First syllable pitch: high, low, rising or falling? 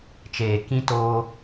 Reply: low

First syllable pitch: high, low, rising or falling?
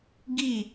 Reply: falling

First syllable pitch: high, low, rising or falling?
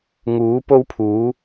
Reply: rising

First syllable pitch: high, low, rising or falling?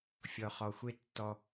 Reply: low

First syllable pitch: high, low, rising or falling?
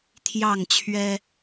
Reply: falling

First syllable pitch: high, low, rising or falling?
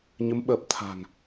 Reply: rising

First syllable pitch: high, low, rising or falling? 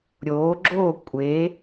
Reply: rising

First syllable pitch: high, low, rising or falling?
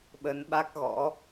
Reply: rising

